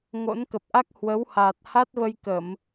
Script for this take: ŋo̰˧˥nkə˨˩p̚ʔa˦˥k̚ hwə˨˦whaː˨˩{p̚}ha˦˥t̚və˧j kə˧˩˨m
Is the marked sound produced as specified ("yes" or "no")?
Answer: no